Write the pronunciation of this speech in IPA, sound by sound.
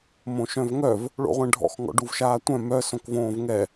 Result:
m õ ʃ œ̃ v ŋ œ v | ɭ o̰ ʁʷ ɛ̃ ɖʱ ɔ̰ x ŋ ɔ̰ ɖ u v ʃ aː tʷ œ̃ m œ s õ k v õː v ŋ ɛ

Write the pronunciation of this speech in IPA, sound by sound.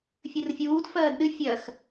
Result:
fʲ ɨ r fʲ uː d f ɜː d ɗ ɨ fʲ ɜ x

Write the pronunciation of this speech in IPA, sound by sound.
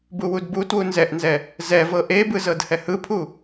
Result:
b u w u d b u t w u n z ɛ ʔ n z ɛ | z ɛ v ɤ ʔ e b ɯ z ɤ d h ɛ h ɯ pʰ u

